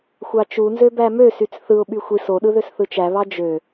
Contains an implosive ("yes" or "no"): yes